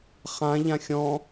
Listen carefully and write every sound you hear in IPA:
χ ã ʎ ã xʲ ɔ̃

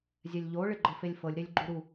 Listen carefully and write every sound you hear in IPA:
zʲ ɛ lʲ ʎ o ɭ ɪ ɡ͡ǃ ɤ f e lʲ f ɤ lʲ ɾ e lʲ ɡ͡ǃ u ɾ u

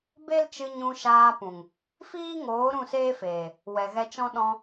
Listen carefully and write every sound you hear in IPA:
b e˦ l t͡ʃ ɨ˧ ɲ ũ˧ ʃ aː˧ p ũ˨ ŋ | f iː˦ ŋ oː˨˦ ɾ ũ˦˨ s eː˦ f eː˨ | w ɛ˨ ɣ ɛ˧ t͡ʃ ɔ̃˦ ɗ ɔ̃˧

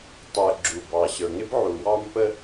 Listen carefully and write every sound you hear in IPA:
tˤ u˩ ə̯ ɡ͡ǁ u˩ b ɑ˩ ɕ ə˞˩ ŋ ɪ˥ b ʕ u˩ w ɑ˥ m p ə˥

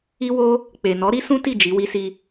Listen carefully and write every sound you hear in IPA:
i˦ w o˦ | k͡p e˨ n ɔ˨˦ ɾ i˦ s ũ˦ t i˦˨ d͡ʒ i˨˦ w i˦ s i˧

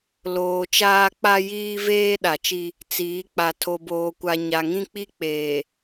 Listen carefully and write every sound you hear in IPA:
l oː˨ t͡ʃ aː˦ k͡p a˦ j iː˦ v eː˦ ɗ a˨ t͡ʃ i˦ | t͡s iː˨˦ k͡p a˨ tʰ o˨ b oː˨ kʷ a˨ ɲ a˨ ŋ ĩ˦ k͡p i˦ k͡p eː˨

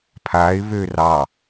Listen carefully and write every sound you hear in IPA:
pʰ a ɪ̯ β ø r ɑ

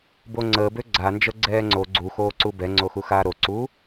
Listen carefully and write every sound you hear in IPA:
b o ŋ͡ǀ əː b ø ɡ͡ǀ a n d͡ʒ ə ɡ͡ǀ ɛː ŋ͡ǀ o ɡ͡ǀ u x oː ǀ u b ɛ ŋ͡ǀ o x u x aː ɾ o ǀ uː

